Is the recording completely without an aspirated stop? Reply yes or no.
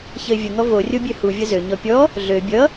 yes